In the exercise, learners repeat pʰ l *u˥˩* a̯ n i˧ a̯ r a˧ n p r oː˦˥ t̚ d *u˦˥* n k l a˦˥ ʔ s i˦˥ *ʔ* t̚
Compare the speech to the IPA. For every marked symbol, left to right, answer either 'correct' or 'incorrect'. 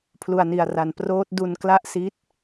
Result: incorrect: u˧, incorrect: u˧, incorrect: none

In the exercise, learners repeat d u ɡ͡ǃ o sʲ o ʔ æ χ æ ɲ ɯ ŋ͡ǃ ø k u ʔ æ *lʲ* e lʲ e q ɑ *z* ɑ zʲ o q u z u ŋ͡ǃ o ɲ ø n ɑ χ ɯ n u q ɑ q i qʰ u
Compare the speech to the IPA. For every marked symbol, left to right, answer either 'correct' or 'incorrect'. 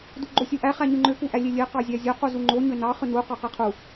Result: correct, incorrect: zʲ

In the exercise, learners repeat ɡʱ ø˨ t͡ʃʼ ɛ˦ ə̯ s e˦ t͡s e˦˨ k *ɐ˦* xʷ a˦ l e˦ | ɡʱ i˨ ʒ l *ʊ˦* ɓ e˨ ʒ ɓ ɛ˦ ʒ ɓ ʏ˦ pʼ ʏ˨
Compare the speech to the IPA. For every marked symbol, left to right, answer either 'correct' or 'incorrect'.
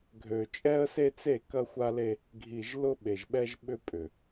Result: correct, correct

